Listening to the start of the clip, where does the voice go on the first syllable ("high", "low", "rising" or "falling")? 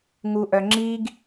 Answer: low